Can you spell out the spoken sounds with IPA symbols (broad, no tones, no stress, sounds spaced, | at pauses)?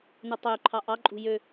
n u tˤ ø ǃʰ ɑ ʔ ɑ ǃʼ ṳ j ø